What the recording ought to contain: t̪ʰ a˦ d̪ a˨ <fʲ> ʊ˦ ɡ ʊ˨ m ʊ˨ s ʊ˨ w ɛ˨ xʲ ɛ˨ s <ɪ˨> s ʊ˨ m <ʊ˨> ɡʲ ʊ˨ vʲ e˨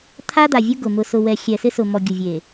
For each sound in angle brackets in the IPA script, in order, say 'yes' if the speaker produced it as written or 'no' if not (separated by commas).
no, no, no